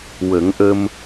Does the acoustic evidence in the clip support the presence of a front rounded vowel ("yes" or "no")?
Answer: no